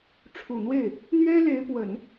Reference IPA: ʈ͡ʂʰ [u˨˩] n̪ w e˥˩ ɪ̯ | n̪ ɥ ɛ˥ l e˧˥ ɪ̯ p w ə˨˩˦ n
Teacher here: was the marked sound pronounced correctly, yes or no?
yes